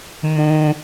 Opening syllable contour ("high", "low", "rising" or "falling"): high